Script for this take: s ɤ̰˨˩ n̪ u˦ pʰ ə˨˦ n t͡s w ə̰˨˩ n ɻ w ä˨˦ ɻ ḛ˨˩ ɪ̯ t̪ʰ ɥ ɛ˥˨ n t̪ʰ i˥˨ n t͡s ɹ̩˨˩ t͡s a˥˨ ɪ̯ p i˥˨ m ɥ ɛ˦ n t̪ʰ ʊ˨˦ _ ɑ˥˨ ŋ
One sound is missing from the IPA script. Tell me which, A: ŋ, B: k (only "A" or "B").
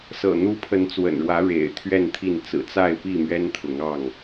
A